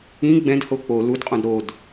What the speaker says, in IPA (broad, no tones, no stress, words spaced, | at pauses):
ĩ ɡ͡bɛ̃d hok͡po ludqʼõd ɾod